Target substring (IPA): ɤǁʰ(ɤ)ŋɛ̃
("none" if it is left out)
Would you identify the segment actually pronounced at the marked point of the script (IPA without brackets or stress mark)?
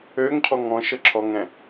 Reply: ɔ